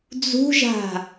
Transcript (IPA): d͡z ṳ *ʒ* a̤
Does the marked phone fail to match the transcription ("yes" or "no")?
no